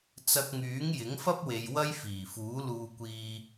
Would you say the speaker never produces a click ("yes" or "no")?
yes